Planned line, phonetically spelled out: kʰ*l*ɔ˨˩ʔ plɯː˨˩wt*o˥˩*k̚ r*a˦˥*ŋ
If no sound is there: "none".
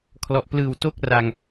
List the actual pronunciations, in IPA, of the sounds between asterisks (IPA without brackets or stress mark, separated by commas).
l, o˥˩, a˧